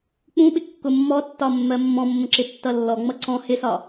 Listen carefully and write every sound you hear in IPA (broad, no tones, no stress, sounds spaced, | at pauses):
k͡p ũ ɓ ɪ kː ʊ mː ɔ tː ɒ mː ɜ mː ɔ̃ mː ə̃ ǁ ɪ tː ʌ lː ɔ ŋ͡m ʌ ǀ ɔ̃ h ɪ s ɒ